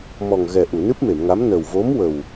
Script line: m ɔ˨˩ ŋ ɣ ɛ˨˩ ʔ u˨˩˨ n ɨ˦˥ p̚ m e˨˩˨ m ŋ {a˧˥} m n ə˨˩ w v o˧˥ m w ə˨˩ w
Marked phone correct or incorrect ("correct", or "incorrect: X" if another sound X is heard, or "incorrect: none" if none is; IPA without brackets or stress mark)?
correct